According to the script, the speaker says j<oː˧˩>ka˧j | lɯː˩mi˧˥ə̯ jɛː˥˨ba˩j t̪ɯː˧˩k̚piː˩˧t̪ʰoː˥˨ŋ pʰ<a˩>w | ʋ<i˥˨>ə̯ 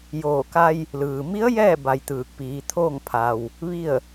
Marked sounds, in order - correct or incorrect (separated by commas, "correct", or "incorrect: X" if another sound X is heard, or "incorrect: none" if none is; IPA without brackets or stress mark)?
correct, correct, correct